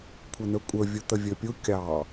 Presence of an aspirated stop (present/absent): present